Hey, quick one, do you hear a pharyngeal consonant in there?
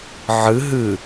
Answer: yes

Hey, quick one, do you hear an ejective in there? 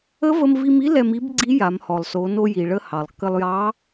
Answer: no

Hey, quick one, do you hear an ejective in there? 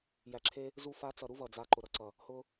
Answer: no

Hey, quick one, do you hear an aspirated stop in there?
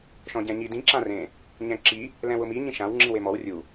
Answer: no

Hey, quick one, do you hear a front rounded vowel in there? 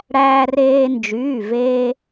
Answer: yes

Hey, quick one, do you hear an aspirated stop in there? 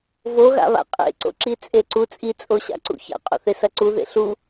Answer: no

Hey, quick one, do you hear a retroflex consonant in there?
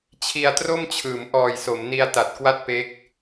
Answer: no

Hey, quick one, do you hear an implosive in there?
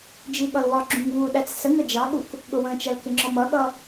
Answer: yes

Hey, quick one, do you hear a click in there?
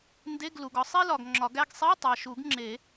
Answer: yes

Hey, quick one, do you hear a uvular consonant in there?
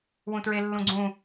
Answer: no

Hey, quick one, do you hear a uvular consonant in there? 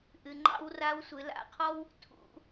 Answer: yes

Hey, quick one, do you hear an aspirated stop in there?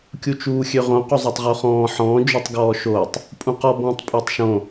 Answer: no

